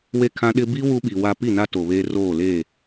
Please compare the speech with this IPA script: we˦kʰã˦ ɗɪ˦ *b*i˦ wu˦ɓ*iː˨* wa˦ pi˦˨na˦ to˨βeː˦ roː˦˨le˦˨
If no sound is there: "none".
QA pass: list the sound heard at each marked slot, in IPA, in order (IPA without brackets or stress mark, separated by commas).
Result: b, i˨